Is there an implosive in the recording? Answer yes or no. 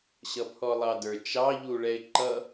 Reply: no